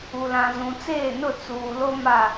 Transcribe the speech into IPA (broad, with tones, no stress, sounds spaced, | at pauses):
u˨ l ã˨ z ũ˨ t͡s eː˦˨ n ʊ˦˨ t͡s uː˨ l o˦ m a˦˨